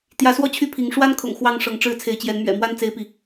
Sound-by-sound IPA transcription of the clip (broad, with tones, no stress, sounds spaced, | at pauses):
t̪ j ä˨˦ s w ɔ˥˨ t͡ɕʰ y˥˨ pʰ i˨˦ ŋ ʂ w a˦ n kʰ ʊ̰˨˩ ŋ x w ɑ˥˨ ŋ ʂ ɤ˨˦ ŋ ʈ͡ʂ ɻ̩˥˨ t͡sʰ e˨˦ ɪ̯ t͡ɕ j ɛ˨˦ n m ɥ ɛ̰˨˩ m w a˥˨ n t͡s e˦ ɪ̯ p i˨